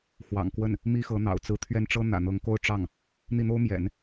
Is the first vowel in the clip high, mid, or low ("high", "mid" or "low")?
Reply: low